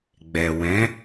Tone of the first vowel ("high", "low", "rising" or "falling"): low